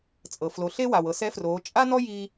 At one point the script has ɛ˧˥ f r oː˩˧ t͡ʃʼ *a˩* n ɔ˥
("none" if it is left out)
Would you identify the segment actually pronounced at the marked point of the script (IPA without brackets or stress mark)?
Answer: a˥